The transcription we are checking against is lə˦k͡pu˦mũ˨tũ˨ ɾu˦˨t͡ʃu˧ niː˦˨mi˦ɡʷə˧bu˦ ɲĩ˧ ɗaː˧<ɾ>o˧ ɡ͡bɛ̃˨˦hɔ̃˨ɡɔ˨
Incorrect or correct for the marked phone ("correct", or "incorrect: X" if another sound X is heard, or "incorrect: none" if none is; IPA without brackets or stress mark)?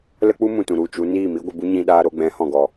correct